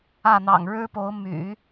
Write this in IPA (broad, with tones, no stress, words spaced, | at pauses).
ä˥˩n̪ɑ̰˨˩ŋ ɻɻ̩˥po˧˥ʊ̯ my̰˨˩˦